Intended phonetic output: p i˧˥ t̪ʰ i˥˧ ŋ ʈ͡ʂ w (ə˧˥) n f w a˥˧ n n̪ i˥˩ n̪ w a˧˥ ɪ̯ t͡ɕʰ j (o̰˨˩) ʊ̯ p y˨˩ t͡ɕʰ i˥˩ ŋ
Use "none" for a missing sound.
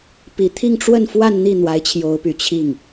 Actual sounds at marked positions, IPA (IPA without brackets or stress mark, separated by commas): ə˥˧, o˧˥